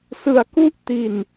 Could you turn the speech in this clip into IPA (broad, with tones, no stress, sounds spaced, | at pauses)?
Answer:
s ɯ˧ a̯ k u˥˩ ʔ t i˧ n